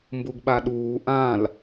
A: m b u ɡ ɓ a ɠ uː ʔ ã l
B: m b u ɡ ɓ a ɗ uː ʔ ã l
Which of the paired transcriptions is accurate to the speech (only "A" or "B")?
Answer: B